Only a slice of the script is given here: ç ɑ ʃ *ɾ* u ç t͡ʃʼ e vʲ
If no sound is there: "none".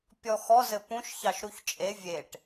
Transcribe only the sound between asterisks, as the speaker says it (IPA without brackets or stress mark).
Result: ɾ